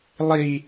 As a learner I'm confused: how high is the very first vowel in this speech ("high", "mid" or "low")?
high